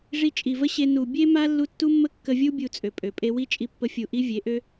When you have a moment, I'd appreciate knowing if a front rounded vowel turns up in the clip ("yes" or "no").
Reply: yes